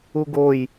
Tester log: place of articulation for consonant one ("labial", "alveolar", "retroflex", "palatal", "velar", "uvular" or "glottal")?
velar